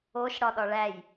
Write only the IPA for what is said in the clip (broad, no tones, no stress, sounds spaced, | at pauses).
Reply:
o ʃ ɽ ɒ ɗ ɒ ɭ æ j